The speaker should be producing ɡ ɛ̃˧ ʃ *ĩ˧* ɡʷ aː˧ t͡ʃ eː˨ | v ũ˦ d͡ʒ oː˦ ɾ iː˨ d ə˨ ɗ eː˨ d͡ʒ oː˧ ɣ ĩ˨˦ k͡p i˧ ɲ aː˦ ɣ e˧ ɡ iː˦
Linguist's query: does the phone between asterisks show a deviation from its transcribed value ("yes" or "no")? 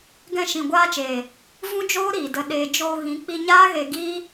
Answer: yes